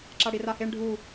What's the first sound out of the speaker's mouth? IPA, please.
ǁ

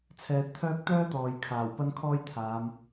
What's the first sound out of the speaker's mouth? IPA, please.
t͡sʰ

